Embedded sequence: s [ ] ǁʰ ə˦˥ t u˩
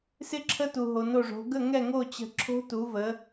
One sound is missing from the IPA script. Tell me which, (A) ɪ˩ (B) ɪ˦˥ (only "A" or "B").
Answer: B